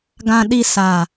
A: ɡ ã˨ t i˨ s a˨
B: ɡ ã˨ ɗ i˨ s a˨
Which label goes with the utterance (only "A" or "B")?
B